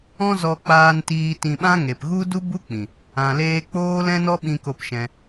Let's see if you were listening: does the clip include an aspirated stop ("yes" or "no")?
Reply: no